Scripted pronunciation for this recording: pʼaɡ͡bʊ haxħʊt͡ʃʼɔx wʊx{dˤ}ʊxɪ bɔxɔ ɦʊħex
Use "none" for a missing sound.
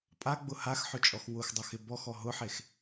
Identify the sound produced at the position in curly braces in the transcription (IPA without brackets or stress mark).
dˤ